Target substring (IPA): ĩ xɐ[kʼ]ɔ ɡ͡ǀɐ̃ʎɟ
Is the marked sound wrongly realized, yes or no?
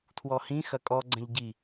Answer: no